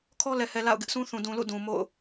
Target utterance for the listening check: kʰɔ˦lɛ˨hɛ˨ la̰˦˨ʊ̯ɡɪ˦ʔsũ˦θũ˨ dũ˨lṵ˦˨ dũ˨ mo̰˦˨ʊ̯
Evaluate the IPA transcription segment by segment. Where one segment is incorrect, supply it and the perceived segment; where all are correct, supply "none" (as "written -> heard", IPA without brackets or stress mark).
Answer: none